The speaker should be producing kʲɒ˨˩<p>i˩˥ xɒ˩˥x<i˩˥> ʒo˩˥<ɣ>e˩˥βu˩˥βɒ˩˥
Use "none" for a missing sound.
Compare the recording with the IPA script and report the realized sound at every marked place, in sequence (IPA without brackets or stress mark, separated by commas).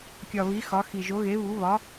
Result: β, i˨˩, ɣ